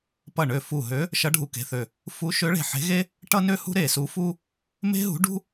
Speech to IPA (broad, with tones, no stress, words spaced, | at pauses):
pʌ˧˩ ɳø˧˩ fu˧˩ɦø˧˥ | ʃʌ˧˥ɖʱu˧˩ke̤˧˩θø˧˩ | fu˧˥ ʃø˧˥ɭe̤˧˩ ħe̤˧˥ɣe˥ | ʈʌ˥nø˥hṳ˥ ɾe˧˩su˧˥fu˥ | me̤˥ɦṳ˧˥ ɖṳ˥